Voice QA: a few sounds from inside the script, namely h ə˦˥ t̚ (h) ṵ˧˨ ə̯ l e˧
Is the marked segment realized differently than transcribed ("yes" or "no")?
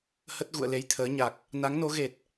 yes